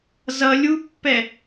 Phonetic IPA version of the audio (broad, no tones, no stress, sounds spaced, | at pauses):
z ʌ lʲ u pː ɛ